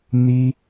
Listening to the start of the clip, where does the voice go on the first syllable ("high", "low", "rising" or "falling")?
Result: high